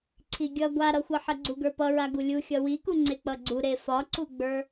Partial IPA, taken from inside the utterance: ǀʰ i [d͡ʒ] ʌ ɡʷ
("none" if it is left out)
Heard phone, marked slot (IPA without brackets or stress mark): ɡʲ